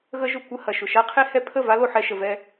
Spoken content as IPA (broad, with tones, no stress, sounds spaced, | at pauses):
ɣ ə˦ ʒ ʊ˧ kʷ ə˧ h ɐ˨ ʃ ʊ˨ ʃ a˦ qʰ e˦ h ɛ˦ pʰ ə˦˨ v a˦ l o˧ ħ ɛ˧ ʃ ə˧ v ɛ˦